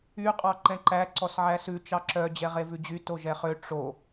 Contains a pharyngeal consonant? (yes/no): yes